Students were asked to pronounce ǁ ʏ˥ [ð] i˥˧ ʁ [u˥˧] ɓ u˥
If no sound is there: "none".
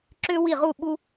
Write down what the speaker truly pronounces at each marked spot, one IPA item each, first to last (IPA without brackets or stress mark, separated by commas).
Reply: w, u˥˧